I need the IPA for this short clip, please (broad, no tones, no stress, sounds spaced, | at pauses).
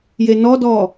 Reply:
j e n ɔ d ɔː